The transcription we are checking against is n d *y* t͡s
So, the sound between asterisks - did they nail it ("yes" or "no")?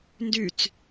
yes